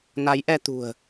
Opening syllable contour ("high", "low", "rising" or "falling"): rising